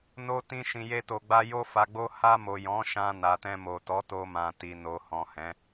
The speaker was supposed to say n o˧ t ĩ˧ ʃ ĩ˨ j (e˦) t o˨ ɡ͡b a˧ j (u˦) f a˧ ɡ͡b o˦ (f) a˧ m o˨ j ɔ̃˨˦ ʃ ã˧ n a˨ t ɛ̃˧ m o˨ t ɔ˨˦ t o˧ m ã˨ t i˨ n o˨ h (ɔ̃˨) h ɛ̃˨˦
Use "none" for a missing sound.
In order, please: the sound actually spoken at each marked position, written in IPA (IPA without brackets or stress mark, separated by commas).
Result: e˧, o˦, h, ɔ̃˨